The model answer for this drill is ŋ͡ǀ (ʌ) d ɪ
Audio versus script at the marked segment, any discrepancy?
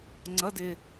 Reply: no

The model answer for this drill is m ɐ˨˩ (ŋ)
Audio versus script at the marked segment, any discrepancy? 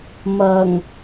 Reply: no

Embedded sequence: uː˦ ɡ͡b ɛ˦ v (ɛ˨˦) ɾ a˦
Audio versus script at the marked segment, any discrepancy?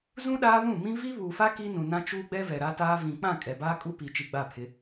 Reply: yes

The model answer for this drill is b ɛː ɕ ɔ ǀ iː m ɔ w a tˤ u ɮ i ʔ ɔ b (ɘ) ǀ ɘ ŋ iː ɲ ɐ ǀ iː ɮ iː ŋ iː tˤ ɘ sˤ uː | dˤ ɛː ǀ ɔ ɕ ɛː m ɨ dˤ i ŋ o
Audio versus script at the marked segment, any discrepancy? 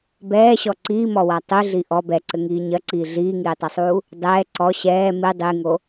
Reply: yes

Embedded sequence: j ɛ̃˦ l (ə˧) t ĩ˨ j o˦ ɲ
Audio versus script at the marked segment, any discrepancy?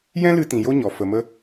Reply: yes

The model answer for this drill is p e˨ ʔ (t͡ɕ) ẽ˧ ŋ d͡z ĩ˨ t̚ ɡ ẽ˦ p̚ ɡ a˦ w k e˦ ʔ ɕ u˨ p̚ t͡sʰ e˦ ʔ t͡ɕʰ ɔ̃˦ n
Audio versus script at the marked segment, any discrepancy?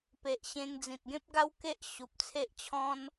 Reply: yes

